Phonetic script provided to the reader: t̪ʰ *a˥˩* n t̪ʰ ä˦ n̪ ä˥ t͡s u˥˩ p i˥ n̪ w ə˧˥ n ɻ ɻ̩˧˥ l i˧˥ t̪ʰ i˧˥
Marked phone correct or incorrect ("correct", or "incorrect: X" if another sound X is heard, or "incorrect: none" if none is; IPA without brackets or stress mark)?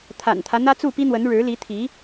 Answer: incorrect: a̰˨˩